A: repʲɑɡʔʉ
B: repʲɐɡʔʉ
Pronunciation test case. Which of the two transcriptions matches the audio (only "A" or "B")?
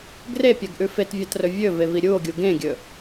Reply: B